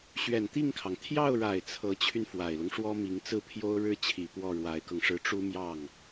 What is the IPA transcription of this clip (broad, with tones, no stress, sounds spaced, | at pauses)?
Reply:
ɕ ɥ ɛ˨˩ n t̪ i˥˩ ŋ kʰ ɑ˩ ŋ t̪ʰ j ɑ˥˩ ʊ̯ ɻ a˨˩ ɪ̯ t͡sʰ ɤ˧˥ t͡ɕʰ y˧ n f w a˨˩ ɪ̯ l ʊ˦ ŋ ʂ w ɔ˥ m i˧˥ ŋ t͡s ɹ̩˥˩ pʰ j o˥ ʊ̯ ɻ ɻ̩˥ t͡ɕʰ i˨˩ p w ɔ˥˩ ɻ w a˧˥ ɪ̯ k ɤ˧ ŋ ʂ ɻ̩˥˩ ʈ͡ʂ u˥ m j ɑ˥˩ ŋ